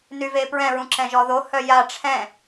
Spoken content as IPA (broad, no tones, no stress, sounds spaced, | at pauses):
n y v e p ɹ ɛ̃ ɹ ũ ǁ ɛ̃ ʒ ɔ ð o h œ j a ʈ͡ʂʰ ɛ̃